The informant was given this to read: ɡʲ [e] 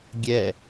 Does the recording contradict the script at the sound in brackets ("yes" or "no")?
yes